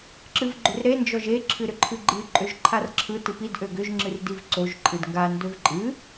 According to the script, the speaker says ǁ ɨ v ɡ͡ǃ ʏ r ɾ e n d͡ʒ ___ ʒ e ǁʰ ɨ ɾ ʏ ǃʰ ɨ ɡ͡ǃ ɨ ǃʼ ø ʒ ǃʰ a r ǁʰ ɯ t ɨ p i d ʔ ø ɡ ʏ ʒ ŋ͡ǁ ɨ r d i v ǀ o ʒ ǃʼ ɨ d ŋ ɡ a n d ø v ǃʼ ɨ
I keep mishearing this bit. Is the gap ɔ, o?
ɔ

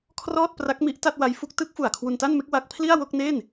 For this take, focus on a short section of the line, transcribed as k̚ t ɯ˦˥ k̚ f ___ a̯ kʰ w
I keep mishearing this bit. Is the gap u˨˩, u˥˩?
u˨˩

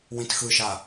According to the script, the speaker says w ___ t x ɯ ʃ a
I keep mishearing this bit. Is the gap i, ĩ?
ĩ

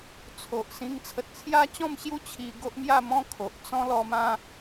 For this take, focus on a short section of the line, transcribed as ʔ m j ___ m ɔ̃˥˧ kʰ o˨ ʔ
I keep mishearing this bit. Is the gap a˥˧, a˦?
a˥˧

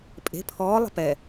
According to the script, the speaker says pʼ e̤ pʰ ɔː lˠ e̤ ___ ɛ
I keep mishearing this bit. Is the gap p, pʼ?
p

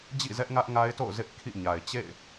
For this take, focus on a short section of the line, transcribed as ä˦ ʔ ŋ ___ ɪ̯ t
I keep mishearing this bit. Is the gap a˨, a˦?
a˦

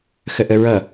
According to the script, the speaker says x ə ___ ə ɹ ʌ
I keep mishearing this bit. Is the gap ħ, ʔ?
ʔ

